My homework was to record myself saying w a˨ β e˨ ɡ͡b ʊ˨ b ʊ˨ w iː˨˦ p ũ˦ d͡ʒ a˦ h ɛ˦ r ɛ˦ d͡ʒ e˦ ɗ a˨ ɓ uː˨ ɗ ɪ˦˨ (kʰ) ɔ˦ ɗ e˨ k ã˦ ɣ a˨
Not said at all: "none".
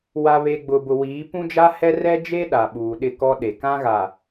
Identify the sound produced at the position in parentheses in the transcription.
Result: k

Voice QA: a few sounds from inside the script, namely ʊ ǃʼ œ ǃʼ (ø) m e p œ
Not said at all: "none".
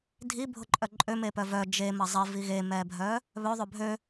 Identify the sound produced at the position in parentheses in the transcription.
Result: ø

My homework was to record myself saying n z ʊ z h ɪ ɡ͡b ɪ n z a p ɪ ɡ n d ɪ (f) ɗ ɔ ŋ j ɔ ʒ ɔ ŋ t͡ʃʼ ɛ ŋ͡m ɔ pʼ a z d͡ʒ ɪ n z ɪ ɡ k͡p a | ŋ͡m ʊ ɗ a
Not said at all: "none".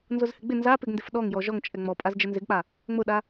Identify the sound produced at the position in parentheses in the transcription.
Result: f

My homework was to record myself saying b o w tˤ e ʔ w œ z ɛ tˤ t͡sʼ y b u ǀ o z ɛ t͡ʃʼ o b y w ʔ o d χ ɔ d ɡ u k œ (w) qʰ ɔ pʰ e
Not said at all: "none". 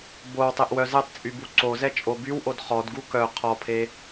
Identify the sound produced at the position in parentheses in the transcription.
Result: none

